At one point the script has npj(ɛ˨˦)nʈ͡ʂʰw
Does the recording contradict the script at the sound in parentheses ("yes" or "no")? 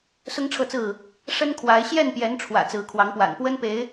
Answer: no